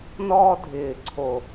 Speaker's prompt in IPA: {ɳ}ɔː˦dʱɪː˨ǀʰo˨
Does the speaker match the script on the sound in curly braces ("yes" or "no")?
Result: no